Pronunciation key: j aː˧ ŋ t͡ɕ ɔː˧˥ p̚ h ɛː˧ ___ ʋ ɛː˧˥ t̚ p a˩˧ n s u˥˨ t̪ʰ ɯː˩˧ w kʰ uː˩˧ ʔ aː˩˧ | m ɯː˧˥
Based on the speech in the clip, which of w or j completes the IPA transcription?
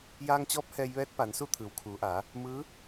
j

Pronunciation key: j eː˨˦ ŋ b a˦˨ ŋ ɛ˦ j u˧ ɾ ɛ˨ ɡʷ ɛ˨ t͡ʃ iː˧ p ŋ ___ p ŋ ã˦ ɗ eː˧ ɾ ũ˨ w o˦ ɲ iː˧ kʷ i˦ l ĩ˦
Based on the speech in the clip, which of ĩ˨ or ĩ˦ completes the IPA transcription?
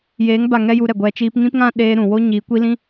ĩ˦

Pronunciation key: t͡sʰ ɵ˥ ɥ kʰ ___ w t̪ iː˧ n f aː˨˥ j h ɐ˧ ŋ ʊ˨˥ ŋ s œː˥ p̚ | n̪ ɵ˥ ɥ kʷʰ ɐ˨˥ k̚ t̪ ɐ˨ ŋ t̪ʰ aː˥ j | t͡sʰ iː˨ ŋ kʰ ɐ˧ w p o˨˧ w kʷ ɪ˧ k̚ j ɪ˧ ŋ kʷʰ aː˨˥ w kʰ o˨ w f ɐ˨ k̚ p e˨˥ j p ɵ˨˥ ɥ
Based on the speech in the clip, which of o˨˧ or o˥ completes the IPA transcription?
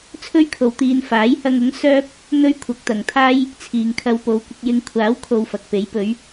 o˨˧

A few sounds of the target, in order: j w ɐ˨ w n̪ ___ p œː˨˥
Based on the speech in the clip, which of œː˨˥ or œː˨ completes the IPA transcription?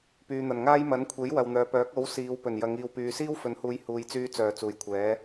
œː˨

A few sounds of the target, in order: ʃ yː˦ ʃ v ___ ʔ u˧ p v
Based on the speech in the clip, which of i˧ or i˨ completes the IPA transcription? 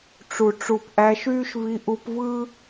i˧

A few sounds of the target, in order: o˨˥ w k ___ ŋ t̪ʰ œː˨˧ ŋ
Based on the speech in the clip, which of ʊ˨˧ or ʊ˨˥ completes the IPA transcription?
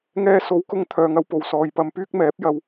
ʊ˨˧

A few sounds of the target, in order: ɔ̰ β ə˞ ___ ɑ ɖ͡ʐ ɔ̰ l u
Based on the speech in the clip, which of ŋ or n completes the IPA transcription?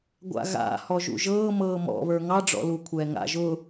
ŋ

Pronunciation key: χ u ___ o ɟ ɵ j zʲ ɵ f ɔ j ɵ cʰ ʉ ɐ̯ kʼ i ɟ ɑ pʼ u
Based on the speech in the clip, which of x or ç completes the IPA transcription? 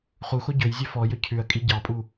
x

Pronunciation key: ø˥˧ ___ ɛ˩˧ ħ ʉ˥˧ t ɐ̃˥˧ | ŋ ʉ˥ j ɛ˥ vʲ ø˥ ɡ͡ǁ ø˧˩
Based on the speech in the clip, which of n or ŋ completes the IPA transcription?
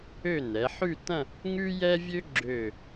n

